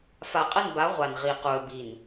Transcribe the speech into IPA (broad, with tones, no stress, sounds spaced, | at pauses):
f a˨ qʼ ə˦˨ n b a˨˦ ʁʷ a˨ n ʁ i˨ q u˨ ə̯ b i˨ n